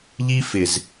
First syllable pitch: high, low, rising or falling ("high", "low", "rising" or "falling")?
high